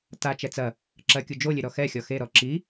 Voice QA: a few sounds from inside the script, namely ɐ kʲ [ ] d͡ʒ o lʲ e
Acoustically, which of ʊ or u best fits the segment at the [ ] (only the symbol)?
u